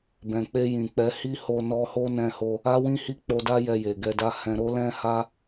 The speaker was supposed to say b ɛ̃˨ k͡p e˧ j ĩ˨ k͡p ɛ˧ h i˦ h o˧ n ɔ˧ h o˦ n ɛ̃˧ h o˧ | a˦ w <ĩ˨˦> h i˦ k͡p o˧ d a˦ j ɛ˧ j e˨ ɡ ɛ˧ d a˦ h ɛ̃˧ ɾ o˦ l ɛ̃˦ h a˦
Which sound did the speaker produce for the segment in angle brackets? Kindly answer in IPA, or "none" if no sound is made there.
ĩ˦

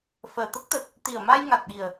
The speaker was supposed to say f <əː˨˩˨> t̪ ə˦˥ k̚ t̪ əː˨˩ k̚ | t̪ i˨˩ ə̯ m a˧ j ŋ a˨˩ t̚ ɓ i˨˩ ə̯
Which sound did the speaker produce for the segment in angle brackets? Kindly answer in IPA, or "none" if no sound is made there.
əː˨˩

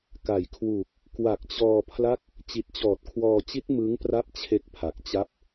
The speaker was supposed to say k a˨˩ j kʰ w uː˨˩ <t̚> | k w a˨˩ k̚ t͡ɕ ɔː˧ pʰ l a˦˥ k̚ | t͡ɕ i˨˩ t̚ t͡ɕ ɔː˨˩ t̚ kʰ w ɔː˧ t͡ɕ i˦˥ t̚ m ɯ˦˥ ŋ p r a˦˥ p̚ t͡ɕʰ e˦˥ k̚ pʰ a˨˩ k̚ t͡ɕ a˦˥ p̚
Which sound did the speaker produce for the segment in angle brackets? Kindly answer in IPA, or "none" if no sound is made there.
k̚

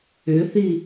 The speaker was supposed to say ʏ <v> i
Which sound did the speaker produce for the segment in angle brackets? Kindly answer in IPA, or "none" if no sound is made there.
θ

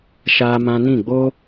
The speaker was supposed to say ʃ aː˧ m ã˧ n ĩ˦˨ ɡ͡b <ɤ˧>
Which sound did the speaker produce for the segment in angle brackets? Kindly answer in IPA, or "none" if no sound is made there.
o˧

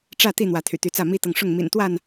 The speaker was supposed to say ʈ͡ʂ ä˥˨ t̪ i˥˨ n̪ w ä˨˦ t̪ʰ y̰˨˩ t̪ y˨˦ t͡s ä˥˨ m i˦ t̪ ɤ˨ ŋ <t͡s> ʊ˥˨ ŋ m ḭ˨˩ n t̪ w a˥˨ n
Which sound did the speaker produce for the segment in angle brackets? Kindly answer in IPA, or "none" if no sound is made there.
ʂ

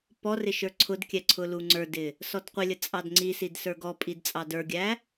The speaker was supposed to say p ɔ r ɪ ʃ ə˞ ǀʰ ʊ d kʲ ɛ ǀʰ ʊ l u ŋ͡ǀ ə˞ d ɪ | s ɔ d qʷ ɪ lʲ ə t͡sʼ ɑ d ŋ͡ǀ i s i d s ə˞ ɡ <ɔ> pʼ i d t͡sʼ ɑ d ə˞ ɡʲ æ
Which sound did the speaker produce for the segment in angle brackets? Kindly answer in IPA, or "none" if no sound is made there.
ɔ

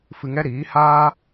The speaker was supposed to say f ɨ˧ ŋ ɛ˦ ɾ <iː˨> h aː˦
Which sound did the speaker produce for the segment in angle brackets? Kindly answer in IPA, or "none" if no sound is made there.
iː˨˦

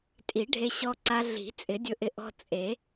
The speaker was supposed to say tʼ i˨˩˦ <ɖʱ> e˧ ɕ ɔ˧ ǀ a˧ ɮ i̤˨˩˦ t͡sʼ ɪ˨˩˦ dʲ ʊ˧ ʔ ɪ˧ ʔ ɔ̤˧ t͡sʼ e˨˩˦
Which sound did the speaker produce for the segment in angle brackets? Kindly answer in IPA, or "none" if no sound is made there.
ɖʱ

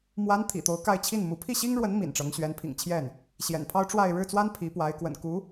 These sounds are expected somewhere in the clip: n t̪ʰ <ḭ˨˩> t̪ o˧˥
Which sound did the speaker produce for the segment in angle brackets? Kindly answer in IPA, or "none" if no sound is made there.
ḭ˨˩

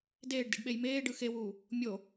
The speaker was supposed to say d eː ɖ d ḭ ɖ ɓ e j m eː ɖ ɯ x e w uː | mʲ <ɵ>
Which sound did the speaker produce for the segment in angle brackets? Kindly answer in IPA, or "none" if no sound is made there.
o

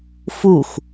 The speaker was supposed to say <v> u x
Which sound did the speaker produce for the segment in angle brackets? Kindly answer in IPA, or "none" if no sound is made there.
f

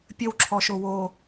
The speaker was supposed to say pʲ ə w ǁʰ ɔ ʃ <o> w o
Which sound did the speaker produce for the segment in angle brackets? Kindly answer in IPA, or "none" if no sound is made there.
o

